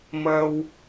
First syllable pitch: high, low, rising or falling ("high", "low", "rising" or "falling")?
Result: high